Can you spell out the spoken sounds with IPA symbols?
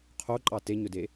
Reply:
qʰoǃʼɑ teɲɵde

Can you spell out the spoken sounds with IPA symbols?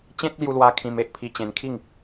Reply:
t͡ɕẽ˦t̚ lju˧lwa˧ kʰĩ˧m e˨ʔpʰi˧ t͡ɕẽ˧nkʰi˥˧ŋ

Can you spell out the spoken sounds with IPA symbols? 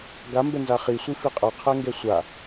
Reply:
ɡambɛnza χisʷi fiqʼʌqʰɛŋɡɛ sʷa

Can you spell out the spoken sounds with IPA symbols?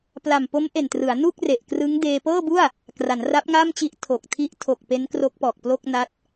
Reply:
pla˨˩mpo˦˥mʔe˨˩ntrɯ˩˦a̯ nu˥˩k̚re˨˩ʔkrɯ˦˥ŋ deː˧pɤː˥˩bu˥˩a̯ | kra˩˦nra˦˥p̚ŋa˥˩mt͡ɕi˦˥ʔ tʰo˨˩k̚tʰi˦˥ʔ tʰo˨˩k̚ pe˦˥nkro˦˥k̚pɔː˨˩k̚plo˥˩k̚ na˦˥t̚

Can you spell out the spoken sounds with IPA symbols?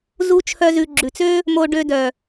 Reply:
zu˦t͡ʃʰœ˦zʉ˧ ɡ͡ǁʉ˨t͡sø˦ | mo˧ ɖø˧dœ˨

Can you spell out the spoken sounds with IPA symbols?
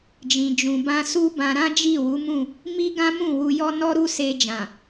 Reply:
d͡ʒĩ˨d͡ʒũ˨bã˧ su˦bã˧ ɾã˦d͡ʒi˦˨wu˨˦mũ˦˨ | mi˦ɡã˦mũ˦˨ wu˧jɔ˦ nɔ˦ɾu˦se˧ d͡ʒã˨

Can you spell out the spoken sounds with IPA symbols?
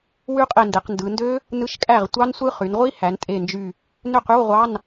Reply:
wy˦˥qʼe˧˩nde˩˧qndɯ˩˧ ndø˦˥ | nɯ˧˥˧ʃkʼæ˥˩ʁtʷɑ˦˥nsʷɯ˦˥ χy˩˧nʁʷi˦˥ hæ˩˧ntʼe˧˩nd͡ʒy˧˩ | nø˥˩qy˧˥˧wʁʷɑ˧˥˧n

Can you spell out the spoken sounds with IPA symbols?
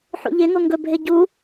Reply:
ħṵʎeŋo ŋɡɵbʱe ɟu

